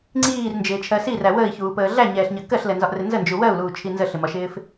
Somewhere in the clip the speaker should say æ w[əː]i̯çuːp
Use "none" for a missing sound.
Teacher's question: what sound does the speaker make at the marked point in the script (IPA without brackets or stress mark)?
əː